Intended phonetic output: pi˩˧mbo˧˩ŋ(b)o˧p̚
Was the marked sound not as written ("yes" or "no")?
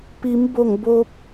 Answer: no